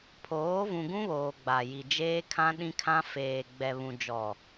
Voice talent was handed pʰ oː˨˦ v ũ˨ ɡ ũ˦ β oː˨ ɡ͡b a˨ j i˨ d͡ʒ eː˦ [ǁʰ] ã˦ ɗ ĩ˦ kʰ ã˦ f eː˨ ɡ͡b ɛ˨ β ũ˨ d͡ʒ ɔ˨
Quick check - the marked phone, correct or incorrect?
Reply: incorrect